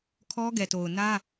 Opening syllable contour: high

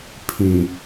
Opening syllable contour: low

